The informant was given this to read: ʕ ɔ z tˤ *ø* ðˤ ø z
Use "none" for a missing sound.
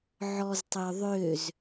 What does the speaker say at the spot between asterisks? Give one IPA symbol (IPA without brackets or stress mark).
ø